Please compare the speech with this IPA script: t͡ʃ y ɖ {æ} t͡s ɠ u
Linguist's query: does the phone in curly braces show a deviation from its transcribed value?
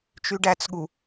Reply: no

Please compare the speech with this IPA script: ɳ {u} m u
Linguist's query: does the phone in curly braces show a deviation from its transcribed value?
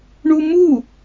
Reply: no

